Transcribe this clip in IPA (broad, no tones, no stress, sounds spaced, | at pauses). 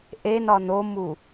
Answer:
ʔ e n ɒ n o m u